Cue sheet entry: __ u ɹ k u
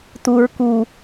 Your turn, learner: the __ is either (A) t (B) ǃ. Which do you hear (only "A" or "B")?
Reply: A